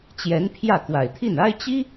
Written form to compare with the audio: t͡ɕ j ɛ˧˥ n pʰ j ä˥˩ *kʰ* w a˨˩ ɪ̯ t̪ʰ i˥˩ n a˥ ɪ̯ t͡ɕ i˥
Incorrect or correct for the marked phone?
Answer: incorrect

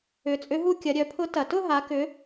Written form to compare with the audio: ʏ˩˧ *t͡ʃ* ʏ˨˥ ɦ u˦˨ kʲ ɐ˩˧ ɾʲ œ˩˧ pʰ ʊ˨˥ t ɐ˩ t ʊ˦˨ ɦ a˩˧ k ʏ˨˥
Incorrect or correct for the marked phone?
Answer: incorrect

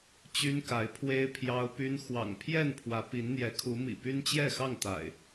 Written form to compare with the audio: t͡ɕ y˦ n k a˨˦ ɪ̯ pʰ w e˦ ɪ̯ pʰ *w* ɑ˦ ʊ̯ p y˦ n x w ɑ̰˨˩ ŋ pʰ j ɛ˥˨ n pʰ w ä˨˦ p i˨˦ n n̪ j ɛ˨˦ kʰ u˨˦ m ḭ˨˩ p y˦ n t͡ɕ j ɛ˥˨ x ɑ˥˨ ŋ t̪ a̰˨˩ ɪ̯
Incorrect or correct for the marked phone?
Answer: incorrect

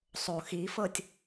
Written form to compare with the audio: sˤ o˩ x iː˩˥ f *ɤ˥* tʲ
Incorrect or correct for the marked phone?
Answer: incorrect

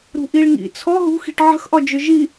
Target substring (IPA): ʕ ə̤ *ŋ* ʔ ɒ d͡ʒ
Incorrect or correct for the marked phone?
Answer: incorrect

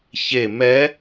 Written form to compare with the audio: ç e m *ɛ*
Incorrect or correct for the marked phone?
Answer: correct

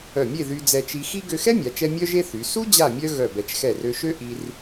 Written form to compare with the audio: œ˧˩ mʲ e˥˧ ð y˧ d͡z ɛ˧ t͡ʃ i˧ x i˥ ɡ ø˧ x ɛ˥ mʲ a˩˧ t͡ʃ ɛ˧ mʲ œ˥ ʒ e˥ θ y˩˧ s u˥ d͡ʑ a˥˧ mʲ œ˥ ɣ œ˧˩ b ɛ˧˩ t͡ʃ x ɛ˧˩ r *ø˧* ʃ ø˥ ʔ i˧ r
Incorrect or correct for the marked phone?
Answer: correct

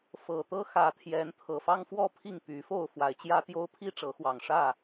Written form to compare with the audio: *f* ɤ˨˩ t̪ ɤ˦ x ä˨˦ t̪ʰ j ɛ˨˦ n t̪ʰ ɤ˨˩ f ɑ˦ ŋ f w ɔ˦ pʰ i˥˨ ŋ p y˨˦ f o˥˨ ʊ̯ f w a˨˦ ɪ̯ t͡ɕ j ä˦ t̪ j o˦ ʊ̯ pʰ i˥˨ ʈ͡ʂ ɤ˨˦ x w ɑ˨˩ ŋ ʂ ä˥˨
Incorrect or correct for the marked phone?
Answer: correct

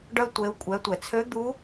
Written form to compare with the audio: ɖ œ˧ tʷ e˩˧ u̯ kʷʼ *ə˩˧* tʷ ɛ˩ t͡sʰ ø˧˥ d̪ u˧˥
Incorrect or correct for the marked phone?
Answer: incorrect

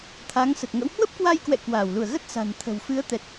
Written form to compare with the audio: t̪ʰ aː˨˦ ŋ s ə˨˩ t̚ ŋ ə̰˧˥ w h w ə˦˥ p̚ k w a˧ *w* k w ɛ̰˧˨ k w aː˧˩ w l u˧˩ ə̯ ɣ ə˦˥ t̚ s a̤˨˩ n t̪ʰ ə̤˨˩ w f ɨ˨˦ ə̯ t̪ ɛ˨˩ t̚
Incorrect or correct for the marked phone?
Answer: incorrect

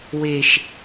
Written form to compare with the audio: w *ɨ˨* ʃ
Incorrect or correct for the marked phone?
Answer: incorrect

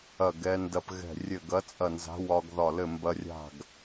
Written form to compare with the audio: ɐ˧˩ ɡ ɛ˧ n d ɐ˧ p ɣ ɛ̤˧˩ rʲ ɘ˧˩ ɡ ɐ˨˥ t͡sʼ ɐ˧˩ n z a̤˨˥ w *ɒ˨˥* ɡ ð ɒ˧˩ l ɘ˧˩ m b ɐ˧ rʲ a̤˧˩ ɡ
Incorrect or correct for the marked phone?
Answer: incorrect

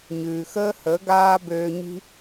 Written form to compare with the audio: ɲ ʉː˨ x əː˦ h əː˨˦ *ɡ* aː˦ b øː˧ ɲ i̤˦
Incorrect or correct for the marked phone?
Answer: correct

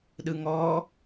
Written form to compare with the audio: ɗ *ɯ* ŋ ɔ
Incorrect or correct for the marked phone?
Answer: correct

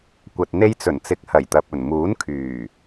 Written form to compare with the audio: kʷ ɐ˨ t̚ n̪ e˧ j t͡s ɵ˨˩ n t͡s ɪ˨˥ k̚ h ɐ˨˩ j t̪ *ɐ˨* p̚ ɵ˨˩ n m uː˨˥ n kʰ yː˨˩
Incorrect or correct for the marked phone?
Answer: correct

